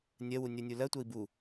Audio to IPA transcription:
nʲ ɜ w u nʲ ɜ nʲ u l ɜ tʷ ɜ i̯ b u

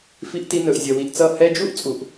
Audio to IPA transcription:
f i˧ ʔ t i˧ n ɵ˨ ʔ zʲ ʌ˨ w i˨ ʔ t͡s ʌ˦˨ h ɛ˧ d͡ʒ u˦ ʔ t͡sʼ u˨ ʔ

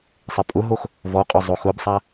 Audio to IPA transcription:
sˤ ɪ pʼ ʊ ɦ o x | v ɔ qʼ ʊ zˤ o x ʊ b sˤ a

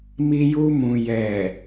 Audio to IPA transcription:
m i˧ j u˧ m ũ˨ j ɛ˨

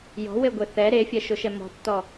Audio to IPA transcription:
j ɔ̤ w e ɡʷ e θ ɛ ɾ e fʲ ɛ ʃ ʊ ʃ ɛ m ɔ̤ tː ɔ

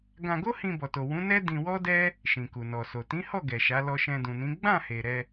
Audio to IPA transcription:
ɡ ã˧ ɡ o˦ h ĩ˧ b ɔ˨ t o˨ w ũ˨˦ n ɛ˦ d ĩ˧ w ɔ˦ d ɛ˦ | ʃ ĩ˨ k u˨ n ɔ˨ s o˨ t ĩ˨˦ h ɔ˦˨ ɡ ɛ˨ ʃ a˨˦ l ɔ˧ ʃ ɛ̃˧ d ũ˨ n ĩ˨˦ ɡ͡b ã˦˨ h e˨ ɾ ɛ˧

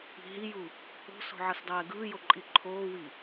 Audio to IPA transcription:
i̤ ɦ i j u | o̤ s o̤ ʕ ʌ s dˤ ɛː ɡ ɯː j o ǃʼ i ǃʰ oː w i

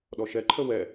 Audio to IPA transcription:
ɗ ɔ ʃ ɛ ǃʰ ə w ɛ

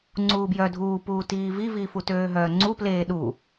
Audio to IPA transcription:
ŋ͡ǀ uː b j œ dʱ uː p uː t iː v i v iː f u t øː ɦ œː ŋ͡ǀ u p l eː ɗ u

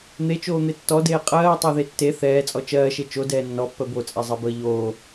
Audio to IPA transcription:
n̪ e t͡ʃ oː n̪ e tː ɔ d eː qʼ ɜː tˤ ɜ ð e tː e θ ɛː t͡sʼ ɔ t͡ʃ ɜː ʃ e t͡ʃ o d ɛː nː ɔ pː ɜ b o t͡sʼ ɛ zˤ ɜ b əː ʎ oː

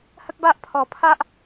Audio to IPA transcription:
h ə˦ k̚ b a˦ ʔ pʰ ɔ˨˩ pʰ a˦ ʔ

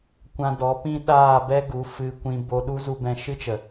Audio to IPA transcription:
kʷ ã˧ d ɔ˨˦ p ĩ˦ ɗ aː˦˨ b ɛ˦ ɡ u˨˦ f ɨ˧ kʷ ĩ˧ b o˧ ɗ u˦ z u˧ b ɛ̃˧ ʃ ɨ˦ t͡ʃ ə˨

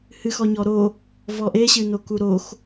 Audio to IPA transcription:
h ɨ x ɔ ɲ ɔ ɾ o | v ɔ ʔ e ɕ ɨ n o k u ɾ o x

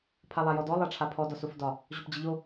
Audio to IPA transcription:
pʰ a lˠ a j ɔ d ɔ lˠ a ʈ͡ʂʰ a pʰ ɔ d ɒ s o f d ɒ | ʑ o p d͡ʑ ə ʎ o

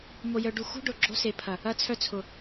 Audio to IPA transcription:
m o˨ j œ˨ ɖ u˨ x ṳ˦ ɖ ʊ˨ ɡ͡ǁ o̤˦ s e˨ pʰ ɐ˨ | ɐ˨ t͡sʰ œ˨ t͡sʰ ʊ˨

